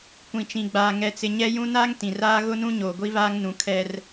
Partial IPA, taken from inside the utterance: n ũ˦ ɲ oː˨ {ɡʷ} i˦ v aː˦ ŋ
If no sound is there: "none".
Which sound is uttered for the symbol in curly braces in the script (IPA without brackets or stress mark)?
ɡʷ